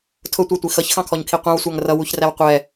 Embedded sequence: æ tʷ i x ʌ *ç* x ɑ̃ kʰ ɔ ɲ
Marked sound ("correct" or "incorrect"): correct